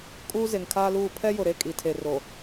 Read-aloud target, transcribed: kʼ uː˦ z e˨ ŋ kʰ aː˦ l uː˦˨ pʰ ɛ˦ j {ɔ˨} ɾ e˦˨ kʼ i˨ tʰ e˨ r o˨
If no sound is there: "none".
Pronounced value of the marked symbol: ʊ˨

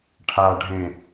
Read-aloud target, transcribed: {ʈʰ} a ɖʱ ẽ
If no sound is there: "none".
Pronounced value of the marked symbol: ʈʰ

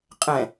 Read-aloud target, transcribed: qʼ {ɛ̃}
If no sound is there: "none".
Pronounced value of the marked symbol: ɛ̃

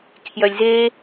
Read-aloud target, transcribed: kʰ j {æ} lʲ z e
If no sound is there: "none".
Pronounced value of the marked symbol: œ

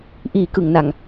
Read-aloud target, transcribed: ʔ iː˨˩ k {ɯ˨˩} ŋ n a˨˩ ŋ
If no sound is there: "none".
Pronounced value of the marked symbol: ɯ˨˩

